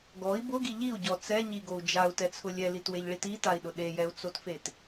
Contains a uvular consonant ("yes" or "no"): no